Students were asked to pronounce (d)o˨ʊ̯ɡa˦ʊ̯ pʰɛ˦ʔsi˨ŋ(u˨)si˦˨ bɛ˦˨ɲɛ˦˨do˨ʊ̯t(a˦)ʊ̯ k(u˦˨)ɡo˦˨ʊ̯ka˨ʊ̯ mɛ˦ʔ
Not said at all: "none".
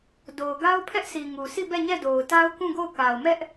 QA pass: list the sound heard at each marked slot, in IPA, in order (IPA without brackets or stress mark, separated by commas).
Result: d, u˨, a˦, ũ˦˨